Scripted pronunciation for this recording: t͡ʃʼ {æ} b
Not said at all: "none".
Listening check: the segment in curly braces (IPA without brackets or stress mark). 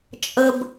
ə